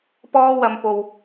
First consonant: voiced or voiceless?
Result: voiceless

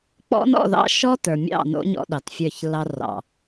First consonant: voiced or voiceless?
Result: voiceless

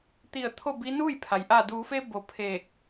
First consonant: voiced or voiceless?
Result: voiceless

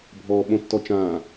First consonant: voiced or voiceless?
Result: voiced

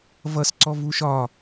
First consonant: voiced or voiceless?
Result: voiced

